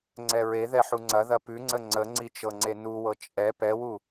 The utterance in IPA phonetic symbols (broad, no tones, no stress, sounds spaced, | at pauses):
ŋ͡ǀ ɛ ɹ e ð ɛ ħ u ŋ͡ǀ ɐ ð ɐ p ʉ ŋ͡ǀ ə ŋ͡ǀ ə ŋ͡ǀ i t͡ʃ ɤ ŋ͡ǀ e n u w ɤ t͡ʃʼ ɛ p ɛ w u